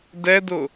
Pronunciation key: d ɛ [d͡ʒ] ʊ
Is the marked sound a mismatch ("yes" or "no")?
yes